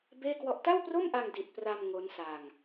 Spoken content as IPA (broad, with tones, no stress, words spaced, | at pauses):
beː˥˩kwɔ˦˥ʔ ta˥˩wpro˥˩mʔa˧ŋ di˨˩t̚pra˧m ŋo˦˥nsa˧ŋ